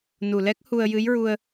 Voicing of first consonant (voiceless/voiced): voiced